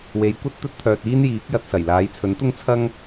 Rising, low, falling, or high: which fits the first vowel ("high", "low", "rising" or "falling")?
rising